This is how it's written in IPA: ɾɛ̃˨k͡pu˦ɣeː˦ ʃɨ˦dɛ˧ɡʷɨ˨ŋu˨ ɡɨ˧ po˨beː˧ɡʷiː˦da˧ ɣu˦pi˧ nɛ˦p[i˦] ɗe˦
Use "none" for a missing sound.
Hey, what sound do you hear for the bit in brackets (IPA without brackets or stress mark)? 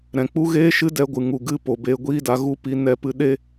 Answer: ɨ˦